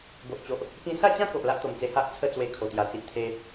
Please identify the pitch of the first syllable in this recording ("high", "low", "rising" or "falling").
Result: low